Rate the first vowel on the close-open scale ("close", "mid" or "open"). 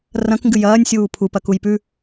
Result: open